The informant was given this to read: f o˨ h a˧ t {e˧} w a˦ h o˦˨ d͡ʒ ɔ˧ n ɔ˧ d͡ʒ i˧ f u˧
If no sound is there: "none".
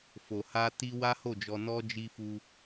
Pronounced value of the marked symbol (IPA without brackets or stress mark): i˧